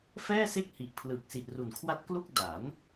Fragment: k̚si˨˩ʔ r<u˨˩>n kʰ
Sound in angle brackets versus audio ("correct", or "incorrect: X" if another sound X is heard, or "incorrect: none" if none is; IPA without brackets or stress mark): correct